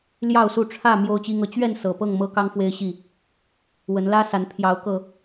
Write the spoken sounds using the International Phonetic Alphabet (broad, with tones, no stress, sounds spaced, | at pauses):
l j ɑ˥˨ ʊ̯ s u˥˨ ʈ͡ʂʰ ä˥˨ m j o˦ ʊ̯ t͡ɕ i˦ ŋ ɤ˨˦ t͡ɕ ɥ ɛ˥˨ n s ɤ˨˩ p ɤ˥˨ ŋ m ɤ˦ k ɑ˦ ŋ f w e˦ ɪ̯ ɕ i˥˨ | w ə˨˦ n l ä˦ s a˨˦ n pʰ j ɑ˨˦ ʊ̯ k ɤ˨˩